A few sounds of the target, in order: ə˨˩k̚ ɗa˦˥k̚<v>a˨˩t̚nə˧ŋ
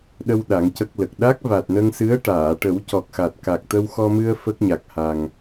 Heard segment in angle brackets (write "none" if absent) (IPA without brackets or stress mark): v